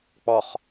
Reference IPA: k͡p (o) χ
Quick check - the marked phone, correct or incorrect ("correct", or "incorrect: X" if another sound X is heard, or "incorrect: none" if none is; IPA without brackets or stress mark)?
incorrect: ɔ